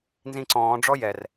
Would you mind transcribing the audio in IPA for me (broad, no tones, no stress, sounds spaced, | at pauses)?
n z ĩ ǀ ɔ̃ː ɖ͡ʐ ɔ j ɛ r